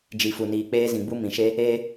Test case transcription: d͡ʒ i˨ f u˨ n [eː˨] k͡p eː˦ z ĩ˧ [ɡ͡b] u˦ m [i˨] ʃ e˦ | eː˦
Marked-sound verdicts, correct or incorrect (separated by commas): incorrect, correct, incorrect